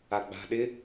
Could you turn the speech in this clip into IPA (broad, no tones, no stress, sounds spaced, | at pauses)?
a ɡ͡b a̤ ɗ ɪ